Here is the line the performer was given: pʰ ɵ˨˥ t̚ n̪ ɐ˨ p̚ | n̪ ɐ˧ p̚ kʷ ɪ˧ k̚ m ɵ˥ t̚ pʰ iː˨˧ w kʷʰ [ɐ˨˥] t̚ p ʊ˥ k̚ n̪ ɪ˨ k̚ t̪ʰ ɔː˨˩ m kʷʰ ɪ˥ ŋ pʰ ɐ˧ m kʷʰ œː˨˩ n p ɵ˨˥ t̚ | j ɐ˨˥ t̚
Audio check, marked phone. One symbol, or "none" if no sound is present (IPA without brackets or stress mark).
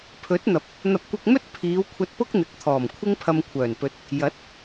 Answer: ɐ˧